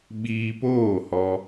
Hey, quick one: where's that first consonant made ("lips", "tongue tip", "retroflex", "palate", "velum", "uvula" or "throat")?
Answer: lips